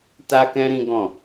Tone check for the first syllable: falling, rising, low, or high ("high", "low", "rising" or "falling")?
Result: high